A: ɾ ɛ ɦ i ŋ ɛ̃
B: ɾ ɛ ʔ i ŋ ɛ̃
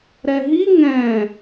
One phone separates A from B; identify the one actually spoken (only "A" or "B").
A